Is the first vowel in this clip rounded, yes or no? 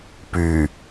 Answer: yes